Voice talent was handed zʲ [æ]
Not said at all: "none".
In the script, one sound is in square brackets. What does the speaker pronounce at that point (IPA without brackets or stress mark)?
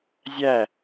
æ